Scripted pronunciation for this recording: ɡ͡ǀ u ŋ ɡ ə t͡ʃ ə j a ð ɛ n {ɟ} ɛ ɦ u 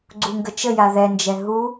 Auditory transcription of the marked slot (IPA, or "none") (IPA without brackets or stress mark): d͡ʒ